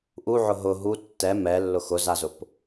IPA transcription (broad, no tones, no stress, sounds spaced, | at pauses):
ʔ u ʕ ʊ ɦ ʊ ɦ u tː ɛ m ɛ lː ʊ x ʊ z a z ʊ p